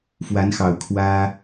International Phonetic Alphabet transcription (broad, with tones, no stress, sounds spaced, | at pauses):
f w a˨˦ n x ɑ˨˩ ʊ̯ kʰ w ä˦